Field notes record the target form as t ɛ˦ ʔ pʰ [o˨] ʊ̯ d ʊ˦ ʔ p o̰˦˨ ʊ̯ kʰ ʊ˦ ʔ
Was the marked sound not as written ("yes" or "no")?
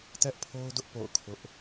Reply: yes